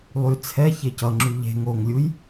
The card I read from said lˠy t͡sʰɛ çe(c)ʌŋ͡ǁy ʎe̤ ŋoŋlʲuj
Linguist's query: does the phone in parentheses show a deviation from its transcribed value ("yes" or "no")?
no